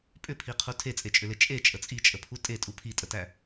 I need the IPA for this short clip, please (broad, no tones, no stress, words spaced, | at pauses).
pʼʏpʰiqʰu tʰet͡sʼet͡ʃʼʏle t͡ʃʼet͡ʃʼə t͡sʼit͡ʃʼəpʰu tʼetʼu pʰitʼətæ